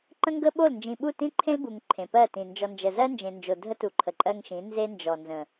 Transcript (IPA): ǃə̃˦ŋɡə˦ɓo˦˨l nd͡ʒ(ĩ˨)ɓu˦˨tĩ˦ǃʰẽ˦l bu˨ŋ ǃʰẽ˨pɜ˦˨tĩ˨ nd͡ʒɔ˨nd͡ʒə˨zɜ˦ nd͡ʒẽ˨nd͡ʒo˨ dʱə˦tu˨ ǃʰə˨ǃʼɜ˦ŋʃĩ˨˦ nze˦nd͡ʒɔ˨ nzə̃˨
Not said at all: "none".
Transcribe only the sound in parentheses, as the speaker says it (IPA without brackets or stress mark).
ĩ˨